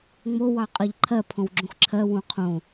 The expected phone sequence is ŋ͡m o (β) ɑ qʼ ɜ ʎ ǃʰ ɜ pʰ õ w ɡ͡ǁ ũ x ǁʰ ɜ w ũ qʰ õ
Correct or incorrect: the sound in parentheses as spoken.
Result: incorrect: w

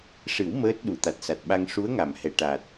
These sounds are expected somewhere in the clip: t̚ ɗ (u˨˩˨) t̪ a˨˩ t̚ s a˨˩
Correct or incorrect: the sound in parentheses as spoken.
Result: correct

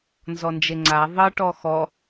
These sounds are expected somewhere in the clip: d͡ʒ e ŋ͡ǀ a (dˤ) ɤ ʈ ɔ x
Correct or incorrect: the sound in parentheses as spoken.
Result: incorrect: ðˤ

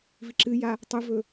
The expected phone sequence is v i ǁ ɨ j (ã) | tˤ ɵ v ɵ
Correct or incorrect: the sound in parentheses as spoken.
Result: incorrect: a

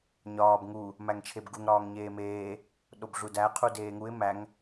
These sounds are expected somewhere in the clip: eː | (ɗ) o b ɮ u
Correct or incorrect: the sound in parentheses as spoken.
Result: correct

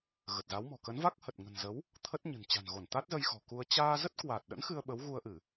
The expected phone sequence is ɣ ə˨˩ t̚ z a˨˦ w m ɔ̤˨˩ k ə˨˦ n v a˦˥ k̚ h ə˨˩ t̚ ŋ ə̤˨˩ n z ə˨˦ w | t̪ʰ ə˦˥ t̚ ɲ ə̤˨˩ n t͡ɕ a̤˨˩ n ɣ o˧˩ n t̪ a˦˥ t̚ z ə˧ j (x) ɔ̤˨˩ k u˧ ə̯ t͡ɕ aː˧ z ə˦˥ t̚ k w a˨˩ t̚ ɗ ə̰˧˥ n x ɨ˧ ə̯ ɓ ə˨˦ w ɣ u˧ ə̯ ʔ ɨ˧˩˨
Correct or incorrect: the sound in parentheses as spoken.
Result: correct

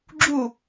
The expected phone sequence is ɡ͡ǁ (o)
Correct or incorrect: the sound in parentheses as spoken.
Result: incorrect: u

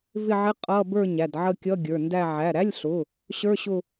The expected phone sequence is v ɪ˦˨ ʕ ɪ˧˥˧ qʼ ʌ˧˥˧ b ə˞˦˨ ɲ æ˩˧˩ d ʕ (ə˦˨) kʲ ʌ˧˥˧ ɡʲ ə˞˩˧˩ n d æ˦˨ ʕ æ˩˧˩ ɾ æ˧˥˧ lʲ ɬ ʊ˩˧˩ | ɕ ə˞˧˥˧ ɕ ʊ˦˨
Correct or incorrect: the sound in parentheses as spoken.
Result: correct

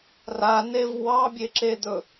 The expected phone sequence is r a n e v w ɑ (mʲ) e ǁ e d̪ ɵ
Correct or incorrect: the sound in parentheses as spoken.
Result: incorrect: bʲ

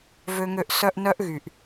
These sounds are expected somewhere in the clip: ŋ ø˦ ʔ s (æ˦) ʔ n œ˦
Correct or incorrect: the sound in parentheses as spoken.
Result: incorrect: œ˦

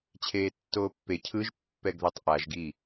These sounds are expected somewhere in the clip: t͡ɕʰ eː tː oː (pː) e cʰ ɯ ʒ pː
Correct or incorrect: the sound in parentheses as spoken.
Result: correct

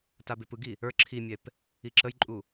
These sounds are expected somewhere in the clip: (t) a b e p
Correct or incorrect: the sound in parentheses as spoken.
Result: correct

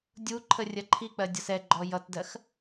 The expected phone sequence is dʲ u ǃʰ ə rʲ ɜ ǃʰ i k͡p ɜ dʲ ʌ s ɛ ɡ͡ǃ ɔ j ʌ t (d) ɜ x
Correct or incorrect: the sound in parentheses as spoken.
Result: correct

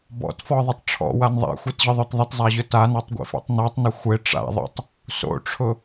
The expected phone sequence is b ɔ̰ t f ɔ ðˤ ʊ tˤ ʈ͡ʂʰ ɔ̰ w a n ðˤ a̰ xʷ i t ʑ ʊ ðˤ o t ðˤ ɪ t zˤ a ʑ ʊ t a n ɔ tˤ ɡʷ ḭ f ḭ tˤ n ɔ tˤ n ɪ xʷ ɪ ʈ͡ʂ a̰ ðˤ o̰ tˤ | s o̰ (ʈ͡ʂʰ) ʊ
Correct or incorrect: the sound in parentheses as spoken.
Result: correct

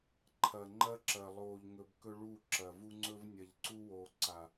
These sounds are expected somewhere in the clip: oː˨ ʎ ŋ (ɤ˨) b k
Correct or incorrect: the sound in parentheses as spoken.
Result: incorrect: ɵ˨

